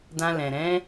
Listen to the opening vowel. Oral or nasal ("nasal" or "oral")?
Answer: nasal